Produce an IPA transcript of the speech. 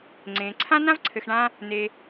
ŋ͡ǀ ẽ˩ ǀʰ ã˥ n ã˥ v ǀʰ ɘ˨ x ɳ ã˦ | n e˨

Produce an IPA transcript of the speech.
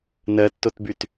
n ɜ tː o t b y t

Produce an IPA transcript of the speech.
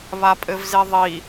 β a pʼ ɘ v z e ðˤ i

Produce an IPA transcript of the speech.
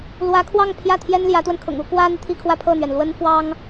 l w ä˧˥ kʰ w ɑ˥˧ ŋ pʰ j ä˥˩ t̪ʰ j ɛ˥ n l j ä˧˥ t̪ w ə˧ n kʰ ʊ̰˨˩ ŋ u˥ k w ä˥ n̪ i˨ t̪ʰ i˥˧ kʰ w ä˥˧ pʰ ɤ˥˩ n̪ ɥ ɛ˩ n l w ə˥ n f w ɑ˥ ŋ

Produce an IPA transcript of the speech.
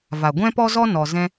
v a˨ ɡʷ ɛ̃˦ p ɔ˦ z ɔ˦ n ɔ˨ z ɛ̃˦

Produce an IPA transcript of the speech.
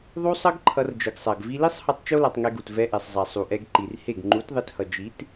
ðˤ u˦ sˤ ʌ˦ ɡ ǃʰ ʌ˧ r d͡ʒ ɯ˨ ɡ sˤ a˨ ɡ v i˧ l i˦ sˤ h ʌ˧ tˤ t͡ʃ o˦ l a˧ tˤ ŋ ɛ˧ ɡ u˨ t v ɛ˧ ʔ ɛ˨ sˤ zˤ a˨ sˤ u˨ ʔ ɛ˧ ɡ ǃ i˨ r h e˦˨ ɡ ŋ͡ǃ u˨˦ t ðˤ e˧ t h ʌ˨ d͡ʒ i˨˦ t

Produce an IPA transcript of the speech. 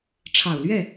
ʈ͡ʂʰ ɑ˨˩ ʊ̯ l ɥ ɛ˥˩

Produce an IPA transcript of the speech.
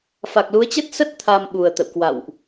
f a˨˩ k̚ l u˨˦ ə̯ t͡ɕ ə˦˥ t̚ s ə˦˥ t̚ t̪ʰ a˨˩ m ɓ u˨˩ ə̯ t̪ ə̰˧˨ w k w a̰˧˨ w ʔ

